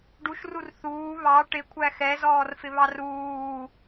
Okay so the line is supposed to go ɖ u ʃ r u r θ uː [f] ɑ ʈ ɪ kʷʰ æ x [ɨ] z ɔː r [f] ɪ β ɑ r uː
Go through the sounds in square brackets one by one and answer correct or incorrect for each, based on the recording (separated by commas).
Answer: incorrect, incorrect, correct